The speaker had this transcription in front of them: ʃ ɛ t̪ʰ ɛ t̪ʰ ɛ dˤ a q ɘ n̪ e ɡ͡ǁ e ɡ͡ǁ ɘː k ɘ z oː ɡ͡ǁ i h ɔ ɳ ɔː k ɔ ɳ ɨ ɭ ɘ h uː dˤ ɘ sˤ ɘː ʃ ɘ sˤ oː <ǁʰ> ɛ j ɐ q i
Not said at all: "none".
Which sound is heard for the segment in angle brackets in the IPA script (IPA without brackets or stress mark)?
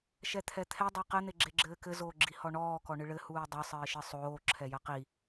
ǁʰ